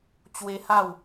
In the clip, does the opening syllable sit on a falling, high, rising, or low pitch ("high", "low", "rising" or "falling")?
high